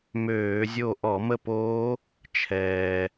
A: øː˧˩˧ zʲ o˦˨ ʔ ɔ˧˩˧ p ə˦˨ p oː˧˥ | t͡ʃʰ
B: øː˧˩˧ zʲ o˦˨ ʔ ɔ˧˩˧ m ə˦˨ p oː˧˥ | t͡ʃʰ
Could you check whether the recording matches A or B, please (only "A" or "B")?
B